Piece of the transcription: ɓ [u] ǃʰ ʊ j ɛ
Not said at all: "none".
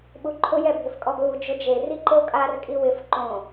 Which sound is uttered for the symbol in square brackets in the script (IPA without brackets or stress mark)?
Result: u